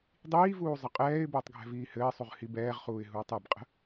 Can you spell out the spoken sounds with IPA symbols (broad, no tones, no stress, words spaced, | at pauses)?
dˤiːvuː zˤəqʼɛːɪ̯bəːtˤ ɡʱɛ̤viːhɘːsˤuʁ hibɛːʁχuːɪ̯ ɦuːtˤɛbqʼə̤